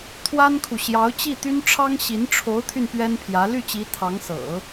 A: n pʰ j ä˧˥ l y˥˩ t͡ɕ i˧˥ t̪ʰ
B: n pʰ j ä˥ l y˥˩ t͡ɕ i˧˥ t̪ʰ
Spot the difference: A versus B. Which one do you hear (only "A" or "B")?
A